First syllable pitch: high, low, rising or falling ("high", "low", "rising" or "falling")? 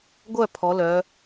falling